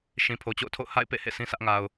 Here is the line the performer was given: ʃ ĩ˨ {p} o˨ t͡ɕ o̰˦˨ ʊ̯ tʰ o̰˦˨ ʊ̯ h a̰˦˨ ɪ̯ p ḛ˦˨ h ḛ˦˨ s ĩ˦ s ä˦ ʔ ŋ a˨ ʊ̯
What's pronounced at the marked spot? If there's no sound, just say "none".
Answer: pʰ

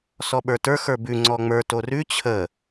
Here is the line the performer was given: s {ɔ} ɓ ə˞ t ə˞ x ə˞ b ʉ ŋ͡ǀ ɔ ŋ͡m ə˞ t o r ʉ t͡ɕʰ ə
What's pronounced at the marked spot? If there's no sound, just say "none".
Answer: ɔ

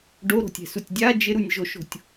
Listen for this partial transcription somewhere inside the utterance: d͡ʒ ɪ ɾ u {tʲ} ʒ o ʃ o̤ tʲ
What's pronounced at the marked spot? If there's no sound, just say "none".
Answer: nʲ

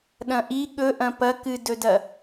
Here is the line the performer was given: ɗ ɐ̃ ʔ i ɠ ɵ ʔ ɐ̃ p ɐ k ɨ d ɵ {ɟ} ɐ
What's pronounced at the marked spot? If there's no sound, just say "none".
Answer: d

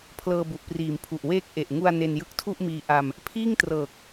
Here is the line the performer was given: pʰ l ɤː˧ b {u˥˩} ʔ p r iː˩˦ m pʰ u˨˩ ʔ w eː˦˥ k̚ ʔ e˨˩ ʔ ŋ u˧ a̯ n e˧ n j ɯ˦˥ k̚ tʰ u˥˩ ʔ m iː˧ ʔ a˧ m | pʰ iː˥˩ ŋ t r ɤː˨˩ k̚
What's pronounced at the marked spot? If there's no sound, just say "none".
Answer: u˨˩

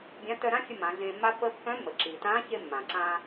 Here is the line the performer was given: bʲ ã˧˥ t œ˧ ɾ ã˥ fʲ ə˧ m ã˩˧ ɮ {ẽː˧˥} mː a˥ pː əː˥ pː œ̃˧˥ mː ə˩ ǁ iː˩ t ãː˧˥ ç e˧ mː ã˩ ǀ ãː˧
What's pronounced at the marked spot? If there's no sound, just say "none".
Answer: ẽː˧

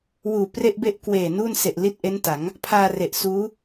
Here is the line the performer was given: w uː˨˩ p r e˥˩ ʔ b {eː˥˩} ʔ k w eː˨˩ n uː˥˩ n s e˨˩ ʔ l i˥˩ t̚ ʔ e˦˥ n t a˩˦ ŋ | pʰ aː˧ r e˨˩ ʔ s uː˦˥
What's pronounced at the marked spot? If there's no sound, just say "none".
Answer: e˥˩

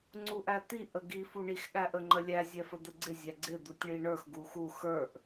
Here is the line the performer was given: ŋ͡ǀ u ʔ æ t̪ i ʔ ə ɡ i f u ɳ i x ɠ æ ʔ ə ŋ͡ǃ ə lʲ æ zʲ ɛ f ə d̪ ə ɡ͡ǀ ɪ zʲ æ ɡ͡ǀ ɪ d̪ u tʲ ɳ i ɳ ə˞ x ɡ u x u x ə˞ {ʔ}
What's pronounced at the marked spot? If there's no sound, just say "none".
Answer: ʔ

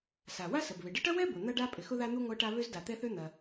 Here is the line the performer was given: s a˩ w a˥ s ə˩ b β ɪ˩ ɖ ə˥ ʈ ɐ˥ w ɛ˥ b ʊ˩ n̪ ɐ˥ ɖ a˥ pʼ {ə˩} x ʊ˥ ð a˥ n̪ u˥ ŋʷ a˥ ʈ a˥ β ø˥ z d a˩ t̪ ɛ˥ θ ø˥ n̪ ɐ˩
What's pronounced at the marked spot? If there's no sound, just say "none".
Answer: ɪ˩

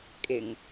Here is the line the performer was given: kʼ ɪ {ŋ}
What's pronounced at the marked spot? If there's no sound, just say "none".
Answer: ŋ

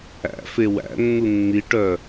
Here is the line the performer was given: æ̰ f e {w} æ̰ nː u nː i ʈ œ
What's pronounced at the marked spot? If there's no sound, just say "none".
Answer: w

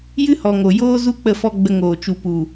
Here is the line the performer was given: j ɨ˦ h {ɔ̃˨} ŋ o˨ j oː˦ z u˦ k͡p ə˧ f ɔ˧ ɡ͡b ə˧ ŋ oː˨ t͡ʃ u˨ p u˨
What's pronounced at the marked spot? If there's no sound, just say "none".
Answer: ɔ˨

